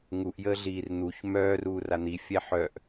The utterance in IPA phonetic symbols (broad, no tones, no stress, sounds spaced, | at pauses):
ŋ u ʔ j əː ɮ iː r n̪ u ç m œː r uː r a n̪ i fʲ ɛ ħ œ ʔ